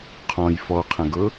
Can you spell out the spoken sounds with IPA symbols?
qʰ ɔ̃ j f ɔ qʰ ə̃ ɡ ɤ

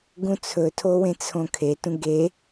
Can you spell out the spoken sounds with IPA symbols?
ɡ ũ t͡sʰ ɵ tʰ o w ẽ t͡sʰ õ kʰ e t ũ ɡ e

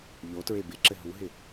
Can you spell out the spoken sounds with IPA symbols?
ʎ o t ɹ e b ɪ ǁ ɘ ɦ u ɦ ɪ

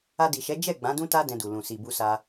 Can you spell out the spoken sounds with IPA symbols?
a˧ d i˨ ʃ ɛ˨˦ d͡ʒ ɛ˦˨ ɡ͡b ã˨˦ d ũ˦ t a˦ d ɛ̃˧ d u˨ l ũ˨ s i˨ b u˧ s a˧

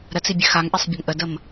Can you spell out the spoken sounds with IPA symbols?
ɾ ə t͡s i bʲ ɘ x a ŋ ʔ ɛ sˤ bʲ ə ŋ ʔ ə d ə m

